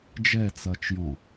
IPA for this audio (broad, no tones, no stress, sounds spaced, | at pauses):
d͡ʒ ɛ t͡s ɐː t͡ʃ j ɔ̃